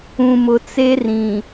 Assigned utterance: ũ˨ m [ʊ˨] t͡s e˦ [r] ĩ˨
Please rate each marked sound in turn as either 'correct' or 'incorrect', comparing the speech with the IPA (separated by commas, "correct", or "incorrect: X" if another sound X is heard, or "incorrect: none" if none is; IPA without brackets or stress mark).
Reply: correct, correct